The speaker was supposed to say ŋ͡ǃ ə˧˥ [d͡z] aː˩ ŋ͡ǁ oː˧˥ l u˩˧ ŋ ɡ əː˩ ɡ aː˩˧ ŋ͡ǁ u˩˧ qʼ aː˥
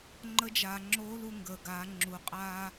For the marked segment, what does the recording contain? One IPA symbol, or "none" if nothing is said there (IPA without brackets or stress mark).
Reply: d͡ʒ